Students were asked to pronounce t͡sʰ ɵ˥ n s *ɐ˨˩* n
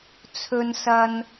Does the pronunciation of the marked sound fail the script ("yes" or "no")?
yes